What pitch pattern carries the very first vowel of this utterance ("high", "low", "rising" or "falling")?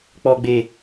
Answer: low